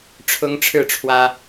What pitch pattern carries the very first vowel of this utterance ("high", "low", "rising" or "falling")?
high